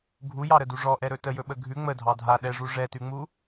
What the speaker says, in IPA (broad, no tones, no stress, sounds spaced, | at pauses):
ɡʱ u j ɑ ɾ ə d u ʐ ɔ ʔ ɛ ɾ ɵ t ə j ɵ ɓ ə ɡʱ ʉ ŋ͡m ə dʱ ɑ dʱ a ɗ ɛ ʐ u ʐ ɛ t ʉ ŋ͡m u